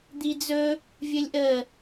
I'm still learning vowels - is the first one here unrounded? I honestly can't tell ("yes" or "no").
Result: yes